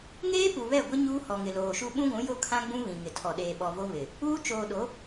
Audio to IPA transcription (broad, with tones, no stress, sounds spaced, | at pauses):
ŋ eː˦ p u˨ β ɛ˦˨ ɡʷ ɪ˦ ɲ uː˦ h ɔ˨ ŋ ɪ˨ l oː˨ ʃ u˦ ɓ ũ˦ ɡʷ ũ˨˦ j o˦ kʰ ã˦ ɡ͡b ũ˦ β ĩ˨ ŋ ɪ˨ tʰ ɔ˨ ɗ eː˨ ɓ ɔ˨ v o˦ β ɪ˨ | uː˦ t͡ʃ oː˨ ɗ o˨˦